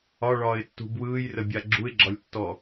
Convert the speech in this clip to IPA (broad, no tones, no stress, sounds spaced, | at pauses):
ɒ ɭ ɒː ɪ̯ tː ṳ b w ɯː j r ə bʲ a ɡ͡ǁ u ɪ̯ ɡ͡ǁ ɒ lʲ tː ɔ